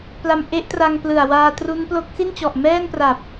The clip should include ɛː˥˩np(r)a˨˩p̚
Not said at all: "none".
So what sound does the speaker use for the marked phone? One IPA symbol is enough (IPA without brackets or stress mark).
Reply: r